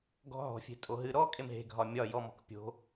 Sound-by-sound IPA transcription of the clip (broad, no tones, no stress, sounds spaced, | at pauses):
ɡ ɔ̤ ɦ ɔ̤ fʲ e̤ tʼ o ɦ ɨ ɾ ɔ kʼ e m ɦ e̤ ɡʱ ɒ mʲ ɒ j ɔ m ɔ̤ k pʲ o̤